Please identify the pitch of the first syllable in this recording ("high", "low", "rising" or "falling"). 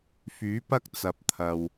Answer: rising